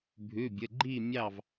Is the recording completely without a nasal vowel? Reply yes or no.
yes